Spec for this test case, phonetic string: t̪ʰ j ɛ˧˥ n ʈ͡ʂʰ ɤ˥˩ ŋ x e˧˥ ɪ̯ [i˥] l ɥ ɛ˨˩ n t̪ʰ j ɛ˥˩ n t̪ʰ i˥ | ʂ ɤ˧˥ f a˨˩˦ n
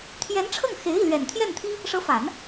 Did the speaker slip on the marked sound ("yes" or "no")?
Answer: yes